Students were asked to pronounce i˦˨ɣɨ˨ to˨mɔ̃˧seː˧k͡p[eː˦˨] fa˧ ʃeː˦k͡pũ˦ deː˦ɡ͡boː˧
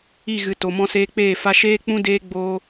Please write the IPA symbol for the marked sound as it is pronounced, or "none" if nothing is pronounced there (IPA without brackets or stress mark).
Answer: eː˦˨